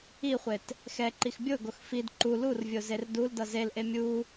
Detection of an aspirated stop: absent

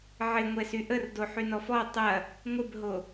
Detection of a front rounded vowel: present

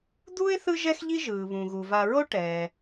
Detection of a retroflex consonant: present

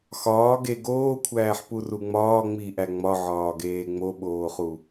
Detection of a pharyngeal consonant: present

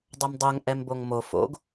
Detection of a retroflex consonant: absent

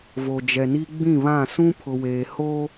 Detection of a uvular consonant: absent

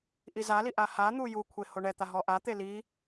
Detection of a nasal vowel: absent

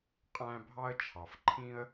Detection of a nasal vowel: present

